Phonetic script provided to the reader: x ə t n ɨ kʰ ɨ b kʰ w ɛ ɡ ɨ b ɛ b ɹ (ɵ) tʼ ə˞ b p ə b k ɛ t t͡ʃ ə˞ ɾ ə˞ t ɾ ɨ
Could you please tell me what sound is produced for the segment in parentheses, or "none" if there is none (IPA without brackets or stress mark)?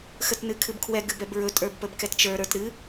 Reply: ɵ